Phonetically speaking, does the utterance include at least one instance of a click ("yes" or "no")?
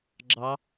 yes